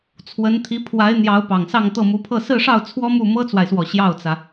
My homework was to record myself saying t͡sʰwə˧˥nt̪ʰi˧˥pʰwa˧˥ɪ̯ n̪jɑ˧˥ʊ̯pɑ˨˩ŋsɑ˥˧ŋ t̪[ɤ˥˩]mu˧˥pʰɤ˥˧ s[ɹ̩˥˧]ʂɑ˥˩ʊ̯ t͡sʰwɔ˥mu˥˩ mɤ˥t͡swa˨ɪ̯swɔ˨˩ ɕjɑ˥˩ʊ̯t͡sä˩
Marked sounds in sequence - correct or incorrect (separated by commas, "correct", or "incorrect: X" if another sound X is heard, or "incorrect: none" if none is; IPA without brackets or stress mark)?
correct, correct